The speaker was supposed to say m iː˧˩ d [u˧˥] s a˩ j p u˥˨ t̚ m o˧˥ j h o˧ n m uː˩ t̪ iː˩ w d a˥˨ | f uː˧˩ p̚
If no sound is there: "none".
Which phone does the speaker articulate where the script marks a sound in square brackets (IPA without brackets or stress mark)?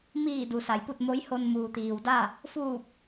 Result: u˩